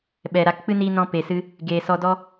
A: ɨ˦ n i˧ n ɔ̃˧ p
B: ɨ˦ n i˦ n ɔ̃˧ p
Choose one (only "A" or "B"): A